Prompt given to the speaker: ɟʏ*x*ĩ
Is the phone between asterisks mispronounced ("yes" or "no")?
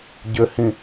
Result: yes